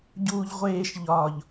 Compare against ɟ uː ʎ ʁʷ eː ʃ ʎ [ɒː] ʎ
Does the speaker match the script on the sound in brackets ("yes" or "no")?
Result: yes